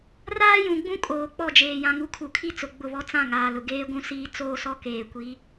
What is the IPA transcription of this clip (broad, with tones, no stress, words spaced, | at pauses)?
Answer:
raː˦jũ˨ɡ͡bũ˦ kʼoː˨k͡pɔ˦˨d͡ʒeː˨ jã˨ŋu˨˦kʰu˨kʰi˦ t͡sʊ˨ ɡ͡bʊ˦˨βɔ˦ t͡sã˦˨ ŋaː˨lʊ˨ ɡeː˦ɡʷũ˦siː˦ t͡soː˦sɔ˦ keː˨kʷi˨˦